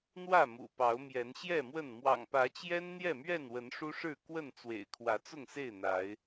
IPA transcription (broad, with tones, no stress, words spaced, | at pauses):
n̪wä˥˨ mṵ˨˩pɑ˨˦ʊ̯mjɛ˨˦n ɕjɛ˥˨mwə˥˨n mwɑ̰˨˩ŋpä˨˦t͡ɕjɛ˦n n̪jɛ˥˨mɥɛ˥˨nwə˨˦n ʂu˦ʂɻ̩˥˨kwə˥˨n t͡swḛ˨˩ɪ̯kʰwä˨˦t͡sʊ˥˨ŋse˥˨ɪ̯ n̪a˨˦ɪ̯